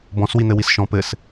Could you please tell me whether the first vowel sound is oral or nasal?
nasal